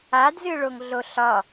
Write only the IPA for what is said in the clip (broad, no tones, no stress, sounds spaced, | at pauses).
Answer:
a d z ɨ ɭ o ŋ ɮ o ɬ ɒ